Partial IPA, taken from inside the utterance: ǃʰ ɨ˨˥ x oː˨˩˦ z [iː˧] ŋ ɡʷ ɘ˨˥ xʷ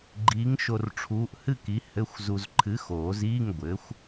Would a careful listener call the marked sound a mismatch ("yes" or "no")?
yes